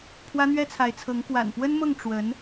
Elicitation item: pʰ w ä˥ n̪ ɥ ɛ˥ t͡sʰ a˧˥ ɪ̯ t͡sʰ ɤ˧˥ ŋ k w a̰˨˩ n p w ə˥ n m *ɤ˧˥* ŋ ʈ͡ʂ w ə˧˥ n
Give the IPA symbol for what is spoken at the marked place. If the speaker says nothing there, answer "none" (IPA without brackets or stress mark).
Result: ɤ˥˩